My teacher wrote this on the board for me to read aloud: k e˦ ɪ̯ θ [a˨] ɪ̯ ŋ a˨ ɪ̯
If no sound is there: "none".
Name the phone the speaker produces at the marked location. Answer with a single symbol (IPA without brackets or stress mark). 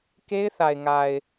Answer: a˨